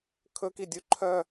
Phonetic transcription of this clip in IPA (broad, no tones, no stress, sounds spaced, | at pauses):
kʰ ɵ k i dʲ u ǃʰ œ